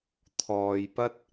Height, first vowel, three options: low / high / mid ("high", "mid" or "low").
mid